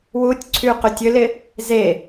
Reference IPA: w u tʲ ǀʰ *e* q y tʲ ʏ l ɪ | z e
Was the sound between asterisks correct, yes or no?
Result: no